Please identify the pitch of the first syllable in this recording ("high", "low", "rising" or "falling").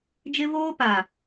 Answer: high